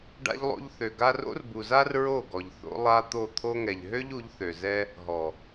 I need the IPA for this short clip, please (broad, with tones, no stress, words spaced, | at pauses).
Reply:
ɖa̰˧ʎlˠo̰˧ʎθø˨ ɡa˧ro̰˦rbu˨za˦r ɹo˦˨ɡɔ˨ʎ θo̰˧ lˠa˧ t̪o˦˨ t̪ʰo˧ŋɛ˨ʎɦø˦ʎ u˨˦ʎθø˨zɛ˦ | ɦɔ˨